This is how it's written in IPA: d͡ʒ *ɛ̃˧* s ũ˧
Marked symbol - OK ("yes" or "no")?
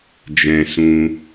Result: yes